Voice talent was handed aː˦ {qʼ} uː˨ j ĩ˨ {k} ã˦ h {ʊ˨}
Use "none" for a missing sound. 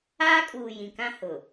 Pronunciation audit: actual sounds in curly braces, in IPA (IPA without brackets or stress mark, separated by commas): kʼ, k, ʊ˨